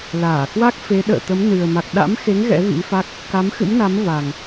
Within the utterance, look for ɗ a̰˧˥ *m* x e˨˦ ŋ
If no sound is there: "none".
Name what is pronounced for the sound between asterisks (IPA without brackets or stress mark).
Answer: m